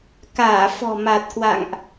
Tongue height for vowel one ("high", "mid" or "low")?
low